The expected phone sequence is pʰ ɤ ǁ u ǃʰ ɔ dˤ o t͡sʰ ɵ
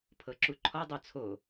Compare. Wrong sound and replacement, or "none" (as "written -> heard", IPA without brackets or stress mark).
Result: ɵ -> o